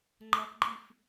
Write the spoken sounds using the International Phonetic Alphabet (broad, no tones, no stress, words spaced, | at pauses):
ŋ͡ǃʌpɡ͡ǃif